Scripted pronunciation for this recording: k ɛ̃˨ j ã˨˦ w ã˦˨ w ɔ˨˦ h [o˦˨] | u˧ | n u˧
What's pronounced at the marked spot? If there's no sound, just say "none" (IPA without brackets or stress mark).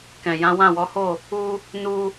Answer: o˦˨